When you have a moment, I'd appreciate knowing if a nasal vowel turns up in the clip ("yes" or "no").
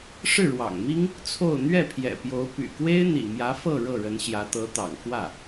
no